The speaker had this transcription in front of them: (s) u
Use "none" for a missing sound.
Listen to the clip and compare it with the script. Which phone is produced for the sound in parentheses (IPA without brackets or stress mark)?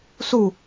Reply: s